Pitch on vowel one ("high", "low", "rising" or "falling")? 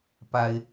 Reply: high